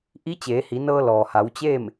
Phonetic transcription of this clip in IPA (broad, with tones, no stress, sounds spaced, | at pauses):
ʔ i˧˥ t͡ɕ eː˩˧ h i˩˧ n ɤː˧ l ɔː˩ h a˩˧ w t͡ɕ eː˥˨ m